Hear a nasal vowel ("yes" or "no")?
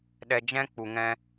yes